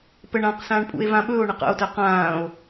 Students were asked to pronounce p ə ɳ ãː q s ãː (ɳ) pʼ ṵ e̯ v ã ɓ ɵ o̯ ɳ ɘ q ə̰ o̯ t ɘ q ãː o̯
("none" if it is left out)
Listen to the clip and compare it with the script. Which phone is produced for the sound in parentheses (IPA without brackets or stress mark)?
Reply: ɳ